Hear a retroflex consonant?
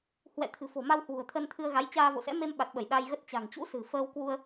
no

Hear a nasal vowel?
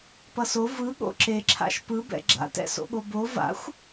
no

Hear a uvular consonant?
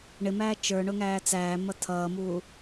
no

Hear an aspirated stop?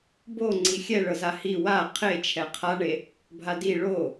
yes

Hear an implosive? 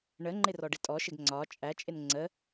no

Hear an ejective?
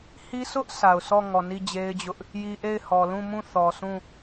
no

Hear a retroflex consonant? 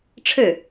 yes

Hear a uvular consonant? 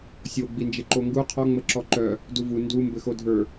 yes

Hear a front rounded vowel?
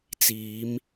no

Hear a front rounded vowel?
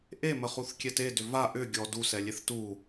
yes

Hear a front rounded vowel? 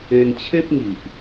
no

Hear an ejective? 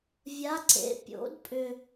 yes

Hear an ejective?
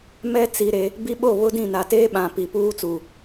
no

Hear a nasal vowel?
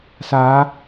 no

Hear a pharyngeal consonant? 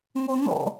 no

